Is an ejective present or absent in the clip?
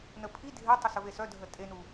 present